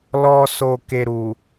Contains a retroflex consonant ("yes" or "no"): no